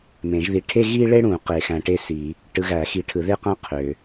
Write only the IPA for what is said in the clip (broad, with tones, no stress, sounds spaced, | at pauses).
m ẽ˨˩˦ ʒ ð i˨˦ ʈʰ e˥ ɣ i˥ ɭ e˥ ɽ ũ˨˩˦ q e˨˩˦ x æ̃˨˦ ʈ e˥ s i˨˩˦ | ʈ ɯ˨˦ ɣ æ˨˩˦ x i˨˦ ʈʰ ɯ˨˩˦ ð e˥ q æ̃˥ qʰ ø˨